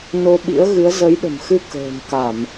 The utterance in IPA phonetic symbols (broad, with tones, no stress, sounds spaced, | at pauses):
n o˧ ɓ ḭ˧˥ ə̯ ɣ ɨ˨˦ ə̯ z ə˨˦ j ɗ ə̤˨˩ m x ɨ˧ k ə̤ː˨˩ m k a˧˩˨ m